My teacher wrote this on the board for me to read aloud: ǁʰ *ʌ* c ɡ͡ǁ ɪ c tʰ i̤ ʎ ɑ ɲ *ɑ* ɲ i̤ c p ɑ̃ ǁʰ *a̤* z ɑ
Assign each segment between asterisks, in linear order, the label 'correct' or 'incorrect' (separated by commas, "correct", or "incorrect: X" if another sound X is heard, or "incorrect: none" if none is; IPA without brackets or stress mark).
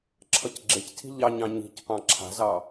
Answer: correct, incorrect: ɑ̃, correct